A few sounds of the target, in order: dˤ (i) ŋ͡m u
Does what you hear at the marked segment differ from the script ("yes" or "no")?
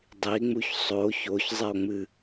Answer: no